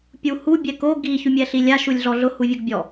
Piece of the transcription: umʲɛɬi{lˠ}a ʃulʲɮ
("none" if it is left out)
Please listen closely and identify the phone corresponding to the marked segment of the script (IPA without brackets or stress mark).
lʲ